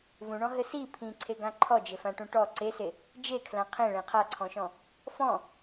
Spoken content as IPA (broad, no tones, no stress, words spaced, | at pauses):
vũɳɔ̃ ɦɘsi pʰĩǀʰeɡã ǃʰɔd͡ʒɘfãʈũ ʈɔ ǀese | d͡ʒekʰlã qʰẽɭẽ qʰaǀʰɔ̃ʃɔ̃ | fɔ̃